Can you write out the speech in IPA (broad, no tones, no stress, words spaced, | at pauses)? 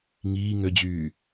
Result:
ŋiː ŋød͡ʑyː